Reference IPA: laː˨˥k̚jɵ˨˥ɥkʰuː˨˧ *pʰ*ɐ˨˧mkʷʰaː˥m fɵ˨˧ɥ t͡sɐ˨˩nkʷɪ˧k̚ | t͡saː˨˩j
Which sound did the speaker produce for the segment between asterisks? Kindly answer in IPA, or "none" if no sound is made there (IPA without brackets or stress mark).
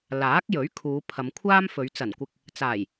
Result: pʰ